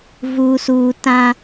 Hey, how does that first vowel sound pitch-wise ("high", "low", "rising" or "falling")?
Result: low